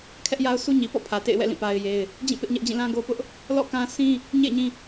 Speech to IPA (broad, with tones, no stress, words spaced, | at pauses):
kʰɛ˦ʔja˦ʊ̯sʰu˦ ɲi˨pɔ̰˦˨ pʰä˨tḛ˦˨ɪ̯wɛ̰˦˨ lĩ˦˨pa˦ɪ̯je˦ɪ̯ | d͡ʑĩ˦˨ pɪ˦ʔɲɛ˦ʔd͡ʑĩ˦˨ lã˦ɡo˦pʊ˦ʔ | lɔ̰˦˨kã˦ sʰĩ˦ | ɲḛ˦˨ɪ̯ɲĩ˦